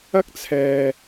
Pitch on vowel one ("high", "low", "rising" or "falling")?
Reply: high